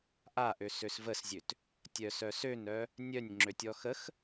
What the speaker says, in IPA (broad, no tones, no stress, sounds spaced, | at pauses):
ʔ a ʔ ø s ø s v ə s zʲ ø t | tʲ œ s œ s ø n œ | nʲ œ nʲ ŋ͡ǁ ø tʲ ɔ x ə x